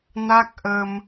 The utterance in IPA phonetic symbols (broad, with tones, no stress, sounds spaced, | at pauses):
n a˦˥ k̚ ʔ ə˧ m